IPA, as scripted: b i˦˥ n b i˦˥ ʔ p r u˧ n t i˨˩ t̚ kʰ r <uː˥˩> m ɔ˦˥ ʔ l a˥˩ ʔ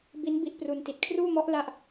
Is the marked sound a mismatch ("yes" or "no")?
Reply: no